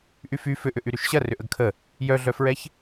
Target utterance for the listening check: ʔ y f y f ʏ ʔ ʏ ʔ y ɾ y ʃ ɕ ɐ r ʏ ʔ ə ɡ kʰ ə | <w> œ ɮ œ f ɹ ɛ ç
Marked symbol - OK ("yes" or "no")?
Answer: no